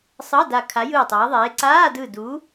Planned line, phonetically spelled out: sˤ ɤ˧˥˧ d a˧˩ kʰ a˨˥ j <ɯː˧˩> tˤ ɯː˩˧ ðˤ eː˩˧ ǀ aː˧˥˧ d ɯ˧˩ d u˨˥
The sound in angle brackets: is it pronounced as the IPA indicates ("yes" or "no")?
yes